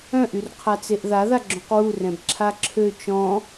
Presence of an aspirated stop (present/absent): present